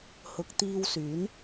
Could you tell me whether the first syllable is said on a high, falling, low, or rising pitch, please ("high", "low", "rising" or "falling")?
rising